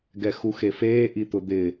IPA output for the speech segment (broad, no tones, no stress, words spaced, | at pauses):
ɡɛxuxefeː ʔit̪ʊd̪ɪ